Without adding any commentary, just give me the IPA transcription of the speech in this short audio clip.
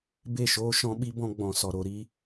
b e˦˨ ʃ oː˦ ʃ ɔ̃˦ ɓ i˦ b ɔ̃˦ ɡ͡b ɔ̃˧ s ɔ˧ ɾ o˨˦ ɾ i˦

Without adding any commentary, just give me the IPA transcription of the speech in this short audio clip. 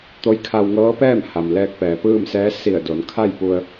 t̪ o˧˥ j kʰ a˧ w ŋ ɤː˧˥ p ɛː˥˨ m h a˩ m l ɛː˧ k̚ p ɛː˩ p ɯː˥˨ m s ɛː˧˥ s i˧˩ ə̯ d o˩˧ n kʰ a˥˨ j p u˧ ə̯

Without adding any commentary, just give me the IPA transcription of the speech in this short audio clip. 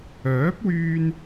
œː˨˥ p̚ w yː˧ n

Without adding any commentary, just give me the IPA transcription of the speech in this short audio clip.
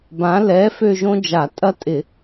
b ã˨˥ l ɛ˨˥ f ø˥˧ ʒ õ˥ d͡ʒ a˧˩˧ tʼ ɐ˥˧ tʼ ɪ˧˩˧

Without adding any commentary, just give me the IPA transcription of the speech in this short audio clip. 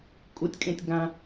kʼ u tʲ kʼ ẽ tʲ ɡ ã

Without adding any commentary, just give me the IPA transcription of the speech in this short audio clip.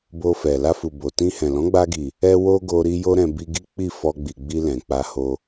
b o˧ f ɛ˨ l a˧ f u˨ b o˨ t ĩ˧ h ɛ̃˨ l ɔ̃˨˦ ɡ͡b a˧ ɡ i˨ | ɛ˧ w o˧ ɡ o˦ ɾ i˦ j o˦ ɾ ɛ̃˧ b i˦ ɡ i˦ k͡p i˦˨ f ɔ˧ ɡ͡b i˨ ɡ͡b i˧ l ɛ̃˨ k͡p a˧ h o˧

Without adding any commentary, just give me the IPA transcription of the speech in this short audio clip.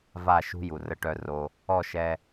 v a˦˨ ʃ ṳ˦ j u˨ r ə˦˨ ʈ œ˦ r o˦ | ɔ˦˨ ʃ ɛ˦

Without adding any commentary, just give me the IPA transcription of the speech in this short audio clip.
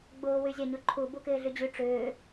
ɡ͡b ʊː w y zʲ a ɲ ʊ ǃʰ u b u k ɪː ɮ y d͡ʑ y ʈ͡ʂ ʏː

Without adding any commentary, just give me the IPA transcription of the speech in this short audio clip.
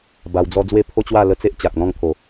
b a˧ w d͡z ɔ˦ d͡z w e˦ pʰ o˦ t͡ɕ w a˥˧ l ə˦ t͡s e˦ ʔ t͡ɕ a˨ k̚ n̪ ɔ̃˥˧ ŋ t̪ʰ o˨˩

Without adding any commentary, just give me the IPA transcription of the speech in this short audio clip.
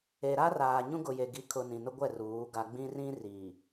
e˨ ɾ a˦ r aː˨ ɲ ũ˦ ɡ ʊ˨ j e˨ ɡ i˨˦ kʰ ʊ˨ n ĩ˨ n ʊ˦ ɡʷ ɛ˦˨ r uː˨˦ ɡ a˦ ɡ͡b ĩ˦ r ĩ˦ r iː˨

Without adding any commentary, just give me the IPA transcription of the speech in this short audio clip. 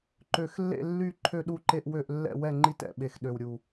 ǃ ø˨˩ x lː ḛ˥˨ lː y˥˨ ǃʰ ø˥˨ ɗ u˥˨ ǃ e˥˨ ʔ w ø˥˨ ʔ lː ɛ̰˥˨ w ɛ˥˨ ŋ͡ǃ i˥˨ t ɛ̰˨˩ ɓ e˨˩ x ɗ ø˨˩ w ɾʲ u˨˩

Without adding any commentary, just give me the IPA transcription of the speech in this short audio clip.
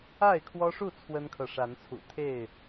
a˥˨ ɪ̯ kʰ w ɔ˦ ʂ u˥˨ t͡sʰ w ə˦ n kʰ ɤ˨ ʂ a˨˦ n t͡sʰ ṵ˨˩ t̪ʰ e˥˨ ɪ̯

